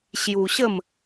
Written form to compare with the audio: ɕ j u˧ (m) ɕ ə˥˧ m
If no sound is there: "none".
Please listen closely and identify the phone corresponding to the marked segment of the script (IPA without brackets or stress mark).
none